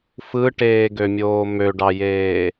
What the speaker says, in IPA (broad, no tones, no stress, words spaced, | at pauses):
fɯʈeːɡømʲoː møɖɑjeː